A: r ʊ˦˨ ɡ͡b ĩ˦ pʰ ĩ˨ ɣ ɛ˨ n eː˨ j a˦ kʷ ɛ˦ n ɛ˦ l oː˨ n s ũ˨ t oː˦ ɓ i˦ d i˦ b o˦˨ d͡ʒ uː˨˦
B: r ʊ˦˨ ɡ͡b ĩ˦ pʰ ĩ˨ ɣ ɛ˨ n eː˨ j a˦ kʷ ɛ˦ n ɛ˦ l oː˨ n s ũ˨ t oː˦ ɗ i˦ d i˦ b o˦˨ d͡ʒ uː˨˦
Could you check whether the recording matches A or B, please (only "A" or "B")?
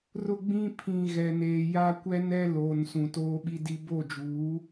A